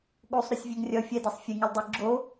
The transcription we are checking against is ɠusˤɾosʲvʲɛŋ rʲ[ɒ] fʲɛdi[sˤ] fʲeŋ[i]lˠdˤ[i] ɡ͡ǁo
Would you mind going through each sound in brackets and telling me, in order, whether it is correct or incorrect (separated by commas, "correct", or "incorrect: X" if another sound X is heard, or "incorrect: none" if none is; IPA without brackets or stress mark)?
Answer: incorrect: ʌ, correct, incorrect: e, correct